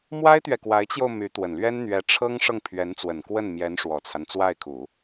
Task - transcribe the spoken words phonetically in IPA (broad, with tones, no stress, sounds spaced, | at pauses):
m w a˥ ɪ̯ t̪ ɥ ɛ˨ k w a˧˥ ɪ̯ t͡ɕ j o˧ ʊ̯ m y˧˥ t̪ w ə˨˩ n l ɥ ɛ˥ n n̪ ɥ ɛ˧˥ ʈ͡ʂʰ ɤ˥ ŋ ʂ ɤ˥˩ ŋ pʰ ɥ ɛ˧˥ n t͡s w ə˨˩ n k w ə˥˩ n m j ɛ˧˥ n ʂ w ɔ˨˩ t͡sʰ a˦ n t͡s w a˥˩ ɪ̯ kʰ u˨˩˦